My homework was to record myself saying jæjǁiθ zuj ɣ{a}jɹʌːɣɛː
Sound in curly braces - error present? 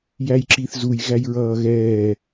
yes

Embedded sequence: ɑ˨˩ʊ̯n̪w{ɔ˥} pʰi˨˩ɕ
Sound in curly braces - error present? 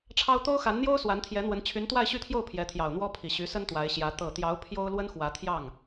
no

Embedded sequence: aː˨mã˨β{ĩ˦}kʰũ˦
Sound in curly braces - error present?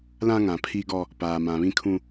no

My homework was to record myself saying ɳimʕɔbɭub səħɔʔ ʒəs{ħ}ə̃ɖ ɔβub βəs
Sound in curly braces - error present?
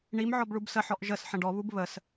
no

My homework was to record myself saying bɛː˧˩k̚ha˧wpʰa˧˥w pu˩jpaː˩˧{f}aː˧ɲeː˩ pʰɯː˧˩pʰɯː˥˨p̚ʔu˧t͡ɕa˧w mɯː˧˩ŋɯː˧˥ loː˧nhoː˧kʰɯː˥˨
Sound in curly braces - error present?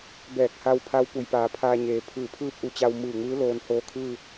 yes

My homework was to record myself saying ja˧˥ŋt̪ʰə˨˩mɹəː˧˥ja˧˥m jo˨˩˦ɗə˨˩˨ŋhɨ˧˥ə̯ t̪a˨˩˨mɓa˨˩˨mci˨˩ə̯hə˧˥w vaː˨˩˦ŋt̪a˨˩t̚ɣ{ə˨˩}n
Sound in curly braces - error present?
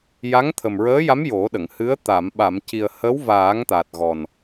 yes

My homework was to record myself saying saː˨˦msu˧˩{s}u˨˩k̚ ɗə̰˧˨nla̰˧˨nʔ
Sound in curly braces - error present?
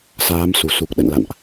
no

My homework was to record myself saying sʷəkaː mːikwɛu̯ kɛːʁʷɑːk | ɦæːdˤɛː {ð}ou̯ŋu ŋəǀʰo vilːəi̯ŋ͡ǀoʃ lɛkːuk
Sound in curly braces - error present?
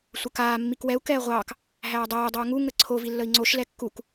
yes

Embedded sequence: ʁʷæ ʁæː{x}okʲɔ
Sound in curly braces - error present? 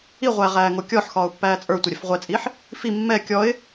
yes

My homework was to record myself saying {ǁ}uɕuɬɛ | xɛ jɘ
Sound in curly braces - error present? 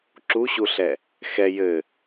no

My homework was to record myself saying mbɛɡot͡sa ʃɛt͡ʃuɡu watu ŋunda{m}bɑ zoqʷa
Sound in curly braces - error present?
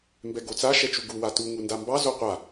no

